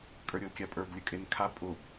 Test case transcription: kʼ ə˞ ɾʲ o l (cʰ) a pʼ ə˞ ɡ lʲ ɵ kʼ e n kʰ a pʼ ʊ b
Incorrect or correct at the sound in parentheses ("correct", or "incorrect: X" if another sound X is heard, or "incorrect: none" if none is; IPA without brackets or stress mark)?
incorrect: kʲ